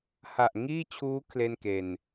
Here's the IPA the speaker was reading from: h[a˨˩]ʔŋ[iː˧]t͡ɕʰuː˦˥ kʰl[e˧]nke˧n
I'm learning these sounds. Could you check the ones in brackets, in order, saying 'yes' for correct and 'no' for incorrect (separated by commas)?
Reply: yes, no, no